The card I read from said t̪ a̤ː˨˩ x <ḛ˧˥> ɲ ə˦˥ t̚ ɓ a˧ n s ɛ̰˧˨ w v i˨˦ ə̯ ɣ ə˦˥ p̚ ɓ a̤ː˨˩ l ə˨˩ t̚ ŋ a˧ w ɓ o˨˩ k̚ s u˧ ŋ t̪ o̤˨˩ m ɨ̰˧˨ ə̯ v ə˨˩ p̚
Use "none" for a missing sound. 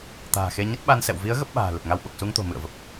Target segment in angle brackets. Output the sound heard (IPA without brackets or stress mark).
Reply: e˧